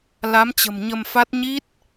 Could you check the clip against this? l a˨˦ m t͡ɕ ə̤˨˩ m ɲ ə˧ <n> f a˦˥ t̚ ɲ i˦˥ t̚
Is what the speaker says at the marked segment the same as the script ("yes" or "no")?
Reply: no